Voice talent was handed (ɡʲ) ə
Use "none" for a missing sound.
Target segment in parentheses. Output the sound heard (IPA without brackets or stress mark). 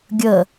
ɡʲ